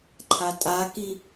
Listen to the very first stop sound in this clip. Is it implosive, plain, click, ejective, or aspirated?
click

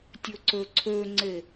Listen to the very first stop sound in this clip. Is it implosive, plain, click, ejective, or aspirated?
plain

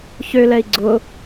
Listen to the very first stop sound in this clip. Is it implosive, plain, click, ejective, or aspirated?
click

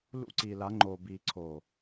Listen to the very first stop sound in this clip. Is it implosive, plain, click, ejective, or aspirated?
click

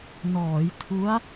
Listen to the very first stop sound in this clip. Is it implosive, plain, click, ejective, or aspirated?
aspirated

